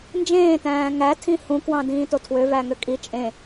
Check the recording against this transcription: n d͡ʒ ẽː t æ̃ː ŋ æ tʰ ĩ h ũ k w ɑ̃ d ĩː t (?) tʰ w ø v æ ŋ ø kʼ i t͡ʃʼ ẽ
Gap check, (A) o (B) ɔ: A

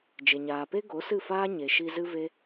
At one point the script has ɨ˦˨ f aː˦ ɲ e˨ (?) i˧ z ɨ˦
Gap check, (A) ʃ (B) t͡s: A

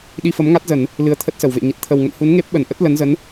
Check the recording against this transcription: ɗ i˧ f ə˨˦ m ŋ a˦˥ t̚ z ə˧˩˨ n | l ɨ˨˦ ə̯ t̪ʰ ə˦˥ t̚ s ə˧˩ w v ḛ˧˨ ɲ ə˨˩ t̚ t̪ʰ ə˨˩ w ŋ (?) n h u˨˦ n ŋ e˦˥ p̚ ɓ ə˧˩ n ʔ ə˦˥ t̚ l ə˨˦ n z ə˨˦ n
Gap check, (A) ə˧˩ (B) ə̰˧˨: B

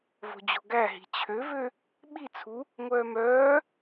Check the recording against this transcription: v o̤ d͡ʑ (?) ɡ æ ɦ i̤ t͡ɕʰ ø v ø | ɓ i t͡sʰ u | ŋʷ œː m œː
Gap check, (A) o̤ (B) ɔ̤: A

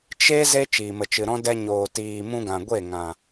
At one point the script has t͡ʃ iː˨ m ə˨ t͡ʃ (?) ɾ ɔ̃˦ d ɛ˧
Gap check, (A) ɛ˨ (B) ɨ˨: B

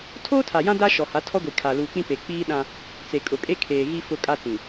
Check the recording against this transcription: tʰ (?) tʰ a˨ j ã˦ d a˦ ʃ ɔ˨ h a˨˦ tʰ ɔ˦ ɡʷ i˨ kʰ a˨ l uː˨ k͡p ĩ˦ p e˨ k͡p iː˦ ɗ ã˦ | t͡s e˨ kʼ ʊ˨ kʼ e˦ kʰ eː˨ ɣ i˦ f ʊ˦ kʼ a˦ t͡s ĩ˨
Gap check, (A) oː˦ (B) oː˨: A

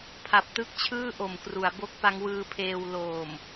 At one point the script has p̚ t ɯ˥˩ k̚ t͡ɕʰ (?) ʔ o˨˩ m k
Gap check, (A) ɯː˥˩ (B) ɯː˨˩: A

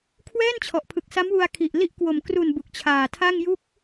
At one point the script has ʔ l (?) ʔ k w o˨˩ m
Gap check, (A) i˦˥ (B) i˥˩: A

